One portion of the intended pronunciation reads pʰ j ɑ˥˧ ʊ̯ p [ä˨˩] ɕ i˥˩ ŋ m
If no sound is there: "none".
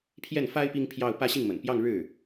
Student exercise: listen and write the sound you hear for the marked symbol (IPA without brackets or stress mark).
ä˥˧